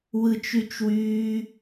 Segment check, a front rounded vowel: present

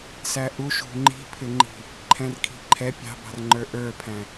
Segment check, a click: present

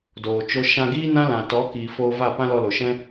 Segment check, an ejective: absent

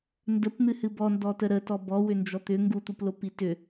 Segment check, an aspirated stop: absent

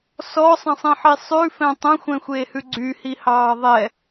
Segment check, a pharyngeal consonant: present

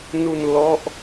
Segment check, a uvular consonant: absent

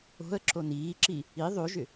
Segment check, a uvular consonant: absent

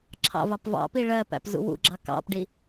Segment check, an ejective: absent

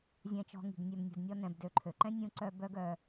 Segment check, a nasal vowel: present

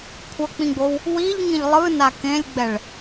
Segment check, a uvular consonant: absent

